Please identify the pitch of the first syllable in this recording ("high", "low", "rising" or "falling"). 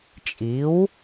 rising